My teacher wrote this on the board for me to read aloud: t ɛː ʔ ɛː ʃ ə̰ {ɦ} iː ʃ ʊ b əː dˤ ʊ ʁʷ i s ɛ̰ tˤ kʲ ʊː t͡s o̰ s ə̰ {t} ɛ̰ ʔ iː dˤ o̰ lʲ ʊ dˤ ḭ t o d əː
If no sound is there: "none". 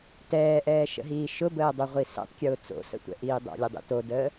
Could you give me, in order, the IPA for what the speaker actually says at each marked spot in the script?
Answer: ɦ, tʷ

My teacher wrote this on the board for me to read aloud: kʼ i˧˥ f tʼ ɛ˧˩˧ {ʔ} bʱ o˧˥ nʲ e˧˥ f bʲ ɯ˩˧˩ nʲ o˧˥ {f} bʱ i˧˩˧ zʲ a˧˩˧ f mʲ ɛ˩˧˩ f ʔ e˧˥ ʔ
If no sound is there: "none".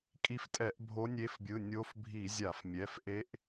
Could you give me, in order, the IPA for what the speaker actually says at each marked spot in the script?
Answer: ʔ, f

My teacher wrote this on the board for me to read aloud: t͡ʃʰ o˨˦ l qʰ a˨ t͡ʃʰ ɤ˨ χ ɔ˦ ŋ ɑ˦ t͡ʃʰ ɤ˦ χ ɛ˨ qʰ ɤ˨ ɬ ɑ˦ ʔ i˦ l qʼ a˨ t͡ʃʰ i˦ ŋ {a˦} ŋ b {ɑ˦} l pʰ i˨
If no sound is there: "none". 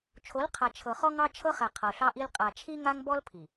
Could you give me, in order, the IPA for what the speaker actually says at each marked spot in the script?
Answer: a˦, ɔ˦

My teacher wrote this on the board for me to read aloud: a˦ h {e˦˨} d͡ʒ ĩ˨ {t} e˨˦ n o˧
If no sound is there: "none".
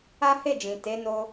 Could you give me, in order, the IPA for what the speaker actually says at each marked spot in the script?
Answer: e˦˨, t

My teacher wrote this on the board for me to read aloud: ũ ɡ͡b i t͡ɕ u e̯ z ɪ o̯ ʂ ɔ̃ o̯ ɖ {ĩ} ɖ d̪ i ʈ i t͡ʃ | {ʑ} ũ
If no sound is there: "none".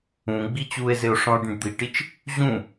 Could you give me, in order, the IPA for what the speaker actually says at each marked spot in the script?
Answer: ĩ, ʑ

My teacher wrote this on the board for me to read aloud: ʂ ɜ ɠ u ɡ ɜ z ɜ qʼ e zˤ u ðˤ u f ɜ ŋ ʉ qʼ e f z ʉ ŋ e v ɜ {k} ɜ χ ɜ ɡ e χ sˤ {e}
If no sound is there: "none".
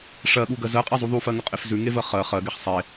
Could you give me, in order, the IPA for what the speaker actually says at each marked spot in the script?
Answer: χ, e

